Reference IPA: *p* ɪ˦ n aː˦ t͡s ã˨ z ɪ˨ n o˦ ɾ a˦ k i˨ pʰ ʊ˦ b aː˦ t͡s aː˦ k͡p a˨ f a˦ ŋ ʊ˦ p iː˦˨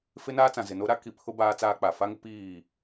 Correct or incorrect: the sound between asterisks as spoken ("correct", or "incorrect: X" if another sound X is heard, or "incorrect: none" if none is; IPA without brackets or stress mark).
incorrect: f